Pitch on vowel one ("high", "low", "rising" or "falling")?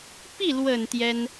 falling